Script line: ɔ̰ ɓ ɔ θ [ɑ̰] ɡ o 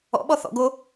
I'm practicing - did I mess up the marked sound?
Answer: yes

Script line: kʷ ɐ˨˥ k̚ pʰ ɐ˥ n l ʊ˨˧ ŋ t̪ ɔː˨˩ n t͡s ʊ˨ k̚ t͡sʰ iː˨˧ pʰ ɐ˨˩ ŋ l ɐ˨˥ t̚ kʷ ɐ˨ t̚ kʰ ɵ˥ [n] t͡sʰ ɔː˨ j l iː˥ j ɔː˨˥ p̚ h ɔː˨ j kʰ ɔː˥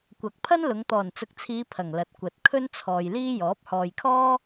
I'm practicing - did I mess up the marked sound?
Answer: no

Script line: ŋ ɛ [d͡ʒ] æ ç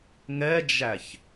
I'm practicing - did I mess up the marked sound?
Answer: no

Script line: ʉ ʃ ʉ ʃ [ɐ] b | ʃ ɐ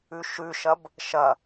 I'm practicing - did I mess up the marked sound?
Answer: no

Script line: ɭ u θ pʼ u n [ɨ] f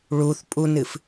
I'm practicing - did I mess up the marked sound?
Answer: no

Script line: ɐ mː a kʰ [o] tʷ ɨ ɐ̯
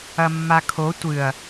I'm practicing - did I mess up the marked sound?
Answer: no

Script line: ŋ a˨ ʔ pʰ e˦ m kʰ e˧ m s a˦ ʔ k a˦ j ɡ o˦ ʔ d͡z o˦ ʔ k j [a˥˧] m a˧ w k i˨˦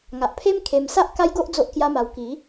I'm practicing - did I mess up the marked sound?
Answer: yes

